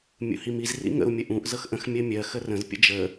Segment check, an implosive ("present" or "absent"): absent